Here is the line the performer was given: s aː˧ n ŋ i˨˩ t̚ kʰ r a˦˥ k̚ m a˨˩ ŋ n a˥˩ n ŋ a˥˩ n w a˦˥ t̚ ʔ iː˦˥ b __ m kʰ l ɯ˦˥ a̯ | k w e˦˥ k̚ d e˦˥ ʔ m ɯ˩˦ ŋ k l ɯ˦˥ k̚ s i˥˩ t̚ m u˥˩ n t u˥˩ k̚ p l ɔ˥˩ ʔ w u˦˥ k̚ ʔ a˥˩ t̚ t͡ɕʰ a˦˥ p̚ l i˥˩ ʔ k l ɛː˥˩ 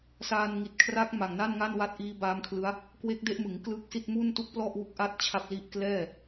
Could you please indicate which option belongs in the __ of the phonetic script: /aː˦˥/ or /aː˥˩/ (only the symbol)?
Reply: aː˦˥